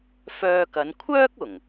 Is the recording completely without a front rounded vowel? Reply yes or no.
no